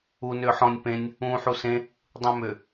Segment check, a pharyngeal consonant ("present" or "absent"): present